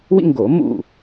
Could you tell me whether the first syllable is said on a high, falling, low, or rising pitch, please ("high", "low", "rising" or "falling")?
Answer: high